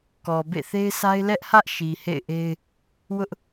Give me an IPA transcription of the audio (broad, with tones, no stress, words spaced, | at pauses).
kɔ˨bḛ˦˨θe˦ɪ̯ sʰa˦ɪ̯ lɛ˦ʔhä˦ʔ ʃi˨hḛ˦˨ɪ̯ʔe˦ɪ̯ | wʊ˦ʔ